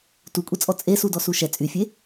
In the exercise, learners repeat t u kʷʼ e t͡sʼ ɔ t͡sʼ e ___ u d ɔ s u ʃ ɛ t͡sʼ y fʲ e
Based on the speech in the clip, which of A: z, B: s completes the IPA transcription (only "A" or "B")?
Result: B